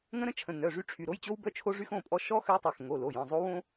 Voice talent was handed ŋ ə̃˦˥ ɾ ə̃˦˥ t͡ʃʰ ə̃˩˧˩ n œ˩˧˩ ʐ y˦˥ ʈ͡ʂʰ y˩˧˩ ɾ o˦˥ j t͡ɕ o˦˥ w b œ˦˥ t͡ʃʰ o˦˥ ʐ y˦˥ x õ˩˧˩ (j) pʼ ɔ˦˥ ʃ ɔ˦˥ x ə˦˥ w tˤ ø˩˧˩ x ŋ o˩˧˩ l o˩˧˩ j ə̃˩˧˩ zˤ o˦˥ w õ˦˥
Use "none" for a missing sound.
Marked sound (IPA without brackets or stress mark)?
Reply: none